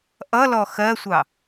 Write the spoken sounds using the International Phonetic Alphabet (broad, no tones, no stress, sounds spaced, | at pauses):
ʔ ʌ l ɔ x ɜ sʷ ɑ